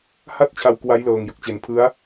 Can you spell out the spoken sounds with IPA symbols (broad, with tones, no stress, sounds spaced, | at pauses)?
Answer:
h a˥˩ t̚ t͡ɕʰ a˧ w k w a˦˥ j l ɤː˨˩ ŋ j ɯ˨˩ k̚ t͡ɕ e˩˦ n pʰ ɯ˦˥ a̯